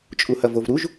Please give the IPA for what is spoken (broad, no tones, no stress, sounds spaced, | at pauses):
t͡ʃʼ u h ɐ v o v ɾ u ʒ